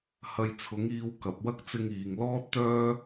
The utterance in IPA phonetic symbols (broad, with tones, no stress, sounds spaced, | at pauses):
h ɐ˨ j t͡sʰ ʊ˨˥ ŋ iː˧ w k ɐ˨ p̚ w ɐ˥ k̚ t͡s ɪ˧ ŋ iː˨ ŋ l ɔː˥ t̚ t̪ œː˥